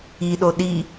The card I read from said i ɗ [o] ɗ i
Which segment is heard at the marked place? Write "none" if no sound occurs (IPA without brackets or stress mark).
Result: o